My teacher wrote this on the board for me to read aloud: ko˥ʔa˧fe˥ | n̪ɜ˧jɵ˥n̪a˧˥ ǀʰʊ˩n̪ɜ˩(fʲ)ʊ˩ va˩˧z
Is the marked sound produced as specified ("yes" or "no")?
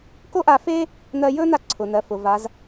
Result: no